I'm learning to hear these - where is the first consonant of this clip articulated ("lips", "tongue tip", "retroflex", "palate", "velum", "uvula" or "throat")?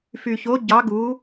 lips